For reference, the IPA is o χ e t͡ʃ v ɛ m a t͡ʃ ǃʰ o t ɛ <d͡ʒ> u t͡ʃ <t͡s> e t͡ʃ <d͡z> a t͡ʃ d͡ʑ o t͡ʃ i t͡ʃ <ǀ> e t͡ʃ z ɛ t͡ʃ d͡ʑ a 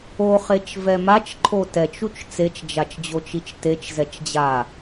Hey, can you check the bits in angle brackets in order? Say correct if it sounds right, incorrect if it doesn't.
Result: incorrect: t͡ʃ, correct, incorrect: d͡ʒ, incorrect: t

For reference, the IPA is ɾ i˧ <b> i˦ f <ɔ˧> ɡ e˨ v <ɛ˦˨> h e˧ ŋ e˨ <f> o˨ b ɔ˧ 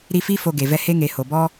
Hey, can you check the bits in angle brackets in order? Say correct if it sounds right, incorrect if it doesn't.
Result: incorrect: f, incorrect: o˧, incorrect: ɛ˧, incorrect: h

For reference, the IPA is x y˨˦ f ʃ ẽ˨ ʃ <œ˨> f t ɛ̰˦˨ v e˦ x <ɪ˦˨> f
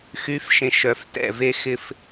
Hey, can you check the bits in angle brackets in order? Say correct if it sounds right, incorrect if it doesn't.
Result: correct, incorrect: ɪ˦

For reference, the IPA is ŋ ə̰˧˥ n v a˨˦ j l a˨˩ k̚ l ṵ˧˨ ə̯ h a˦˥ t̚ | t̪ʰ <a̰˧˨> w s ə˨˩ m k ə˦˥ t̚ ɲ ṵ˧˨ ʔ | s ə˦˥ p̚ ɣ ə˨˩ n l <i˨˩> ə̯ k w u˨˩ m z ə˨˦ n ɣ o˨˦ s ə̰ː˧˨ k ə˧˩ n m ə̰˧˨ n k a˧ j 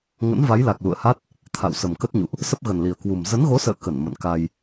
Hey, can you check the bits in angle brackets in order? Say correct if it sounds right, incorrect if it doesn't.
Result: correct, correct

